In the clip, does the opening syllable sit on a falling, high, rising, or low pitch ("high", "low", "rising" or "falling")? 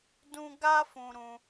high